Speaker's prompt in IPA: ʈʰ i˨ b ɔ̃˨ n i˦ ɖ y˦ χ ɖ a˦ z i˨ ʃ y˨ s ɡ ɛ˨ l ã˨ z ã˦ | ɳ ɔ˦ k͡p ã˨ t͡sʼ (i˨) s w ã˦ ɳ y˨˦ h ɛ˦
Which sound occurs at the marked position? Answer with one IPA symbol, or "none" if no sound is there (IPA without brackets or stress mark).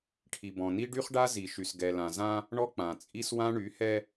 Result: i˦